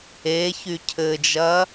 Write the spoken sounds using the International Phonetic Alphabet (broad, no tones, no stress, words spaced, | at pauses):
eçy cʰɘd͡ʒɐ